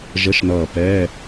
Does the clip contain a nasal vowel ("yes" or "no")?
no